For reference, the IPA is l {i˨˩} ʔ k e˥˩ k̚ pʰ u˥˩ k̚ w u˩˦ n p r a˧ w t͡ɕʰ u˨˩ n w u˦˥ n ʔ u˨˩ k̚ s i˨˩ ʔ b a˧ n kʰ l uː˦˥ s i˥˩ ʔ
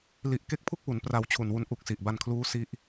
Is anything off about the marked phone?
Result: no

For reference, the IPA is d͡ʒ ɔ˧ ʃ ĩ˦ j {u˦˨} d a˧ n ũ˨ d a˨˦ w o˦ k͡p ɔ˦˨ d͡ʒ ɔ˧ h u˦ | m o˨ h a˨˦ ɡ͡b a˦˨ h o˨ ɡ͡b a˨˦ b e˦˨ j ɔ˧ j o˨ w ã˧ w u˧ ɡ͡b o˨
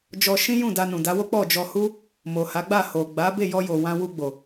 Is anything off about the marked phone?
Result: yes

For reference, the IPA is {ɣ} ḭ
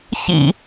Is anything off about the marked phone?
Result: yes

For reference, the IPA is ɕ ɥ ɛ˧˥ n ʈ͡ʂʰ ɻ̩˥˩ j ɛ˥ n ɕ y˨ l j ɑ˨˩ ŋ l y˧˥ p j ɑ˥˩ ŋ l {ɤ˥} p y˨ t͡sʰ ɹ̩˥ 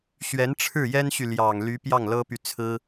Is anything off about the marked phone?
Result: no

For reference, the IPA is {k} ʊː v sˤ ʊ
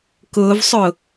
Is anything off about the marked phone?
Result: no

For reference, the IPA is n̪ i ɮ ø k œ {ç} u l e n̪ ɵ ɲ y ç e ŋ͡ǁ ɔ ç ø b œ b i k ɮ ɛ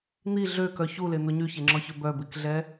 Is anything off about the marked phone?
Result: no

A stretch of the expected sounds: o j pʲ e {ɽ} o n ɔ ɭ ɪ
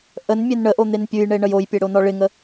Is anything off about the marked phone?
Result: no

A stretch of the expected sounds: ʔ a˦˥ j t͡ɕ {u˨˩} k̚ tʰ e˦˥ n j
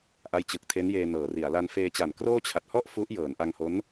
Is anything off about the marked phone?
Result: yes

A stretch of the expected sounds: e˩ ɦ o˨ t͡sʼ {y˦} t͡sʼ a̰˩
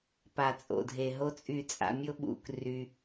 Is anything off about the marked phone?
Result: yes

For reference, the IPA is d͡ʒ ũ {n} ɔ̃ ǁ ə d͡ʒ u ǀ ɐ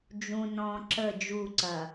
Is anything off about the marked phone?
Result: no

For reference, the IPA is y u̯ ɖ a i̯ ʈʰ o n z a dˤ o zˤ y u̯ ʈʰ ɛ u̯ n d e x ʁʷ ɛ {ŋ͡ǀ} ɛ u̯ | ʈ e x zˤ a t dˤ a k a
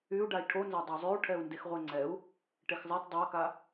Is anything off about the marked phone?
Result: no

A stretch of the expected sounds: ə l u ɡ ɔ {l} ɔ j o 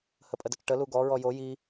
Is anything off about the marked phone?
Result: yes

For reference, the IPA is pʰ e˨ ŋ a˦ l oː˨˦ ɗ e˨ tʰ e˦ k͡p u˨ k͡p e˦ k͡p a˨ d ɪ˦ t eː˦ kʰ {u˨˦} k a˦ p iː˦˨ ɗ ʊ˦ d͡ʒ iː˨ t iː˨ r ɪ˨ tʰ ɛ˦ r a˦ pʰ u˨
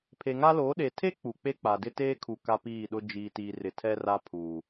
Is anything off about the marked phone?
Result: yes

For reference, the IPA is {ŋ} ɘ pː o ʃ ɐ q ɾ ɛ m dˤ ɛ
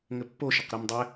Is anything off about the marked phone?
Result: no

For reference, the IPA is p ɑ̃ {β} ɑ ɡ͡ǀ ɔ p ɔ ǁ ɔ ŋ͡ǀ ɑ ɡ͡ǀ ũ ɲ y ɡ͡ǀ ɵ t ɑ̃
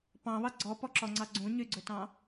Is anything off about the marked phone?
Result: no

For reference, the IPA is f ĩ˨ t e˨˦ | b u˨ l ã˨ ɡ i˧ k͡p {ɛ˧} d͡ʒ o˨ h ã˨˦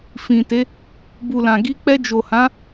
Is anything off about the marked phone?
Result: no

